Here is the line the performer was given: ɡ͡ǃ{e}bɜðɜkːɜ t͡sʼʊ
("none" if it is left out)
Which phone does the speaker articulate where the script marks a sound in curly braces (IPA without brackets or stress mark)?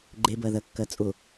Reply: e